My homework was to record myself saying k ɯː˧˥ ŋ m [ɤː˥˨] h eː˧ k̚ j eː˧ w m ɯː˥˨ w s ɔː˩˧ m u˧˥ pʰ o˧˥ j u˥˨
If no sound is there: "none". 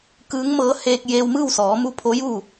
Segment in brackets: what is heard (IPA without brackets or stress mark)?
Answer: ɤː˧˥